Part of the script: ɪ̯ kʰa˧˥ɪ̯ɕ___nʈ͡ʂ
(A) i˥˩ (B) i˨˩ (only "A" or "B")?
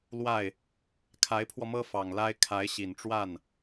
B